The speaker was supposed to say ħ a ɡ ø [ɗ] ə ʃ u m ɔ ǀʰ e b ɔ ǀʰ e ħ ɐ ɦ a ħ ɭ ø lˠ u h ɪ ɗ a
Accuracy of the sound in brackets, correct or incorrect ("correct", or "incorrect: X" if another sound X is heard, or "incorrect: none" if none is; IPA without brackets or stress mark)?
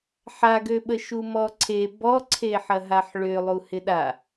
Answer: incorrect: ɓ